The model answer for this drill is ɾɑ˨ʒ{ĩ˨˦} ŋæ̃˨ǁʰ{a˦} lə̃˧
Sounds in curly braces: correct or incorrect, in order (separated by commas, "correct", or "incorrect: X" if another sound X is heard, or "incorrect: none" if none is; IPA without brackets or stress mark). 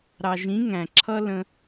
correct, incorrect: ʌ˦